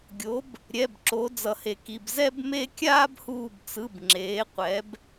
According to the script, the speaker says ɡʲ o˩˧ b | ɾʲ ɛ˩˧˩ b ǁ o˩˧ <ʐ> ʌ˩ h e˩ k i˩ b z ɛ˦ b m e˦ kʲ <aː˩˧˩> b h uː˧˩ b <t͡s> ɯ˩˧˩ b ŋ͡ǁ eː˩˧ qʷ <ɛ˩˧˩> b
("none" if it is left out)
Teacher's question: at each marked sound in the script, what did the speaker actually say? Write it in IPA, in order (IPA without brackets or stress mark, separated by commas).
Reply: d͡z, aː˦, t͡s, ɛ˩˧